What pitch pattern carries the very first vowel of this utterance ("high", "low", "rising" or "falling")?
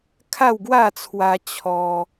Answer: falling